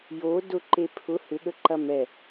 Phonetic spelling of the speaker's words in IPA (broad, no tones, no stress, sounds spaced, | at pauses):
j o d ʊ ǃ e pʰ ʊ h ʏ ɠ ə ǃ ɐ m ɛ